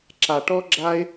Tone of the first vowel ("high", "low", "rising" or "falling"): low